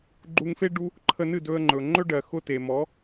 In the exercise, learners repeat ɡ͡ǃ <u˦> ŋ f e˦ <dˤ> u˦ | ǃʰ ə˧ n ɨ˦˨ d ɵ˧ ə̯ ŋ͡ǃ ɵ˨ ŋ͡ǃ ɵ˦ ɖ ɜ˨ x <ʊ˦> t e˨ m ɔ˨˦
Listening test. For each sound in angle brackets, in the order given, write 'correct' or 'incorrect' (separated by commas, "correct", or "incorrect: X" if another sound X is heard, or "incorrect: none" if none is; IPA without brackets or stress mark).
incorrect: u˧, incorrect: ɖ, correct